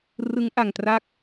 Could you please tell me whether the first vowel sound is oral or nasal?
oral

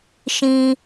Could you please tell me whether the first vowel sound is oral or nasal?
nasal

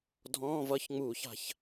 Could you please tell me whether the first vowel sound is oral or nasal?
nasal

